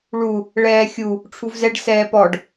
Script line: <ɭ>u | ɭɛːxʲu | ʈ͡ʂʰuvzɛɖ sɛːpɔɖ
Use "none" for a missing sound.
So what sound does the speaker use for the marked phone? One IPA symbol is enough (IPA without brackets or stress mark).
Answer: ɭ